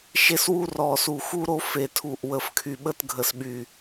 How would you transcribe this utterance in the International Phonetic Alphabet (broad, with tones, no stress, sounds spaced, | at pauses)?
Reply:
ʃ e˥ s w u˥ r ɔ˧˩ s u˧˩ x u˥ ɾ o˥ f e˧˩ tʰ u˧˩ ʔ w ə˧˩ f kʰ y˧˩ ɓ ə˥ t ɡʱ ə˧˩ s ɓ y˧˩